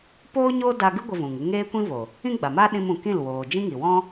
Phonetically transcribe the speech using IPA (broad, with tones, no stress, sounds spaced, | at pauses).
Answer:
p oː˦ ɲ o˦ d a˧ ɡ ɨ˦ ɡʷ ə˧ v ũ˨ ŋ ɨ˧ ŋ eː˦ kʷ ĩ˦ v o˨ | ĩ˦ ɡ͡b a˨ m a˦ ɗ ĩ˧ m ũ˨ k ĩ˦˨ l w oː˨ d͡ʒ ĩ˦ ŋ i˨ w ɔ̃˦